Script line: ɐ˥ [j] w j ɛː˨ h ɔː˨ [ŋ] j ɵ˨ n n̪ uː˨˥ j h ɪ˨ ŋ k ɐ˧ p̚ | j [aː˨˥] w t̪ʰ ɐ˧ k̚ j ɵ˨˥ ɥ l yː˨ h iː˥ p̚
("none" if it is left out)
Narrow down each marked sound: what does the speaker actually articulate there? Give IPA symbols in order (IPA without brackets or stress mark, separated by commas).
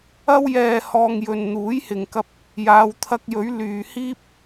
none, ŋ, aː˨˧